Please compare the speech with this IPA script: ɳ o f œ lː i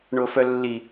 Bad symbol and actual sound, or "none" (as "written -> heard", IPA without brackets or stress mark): none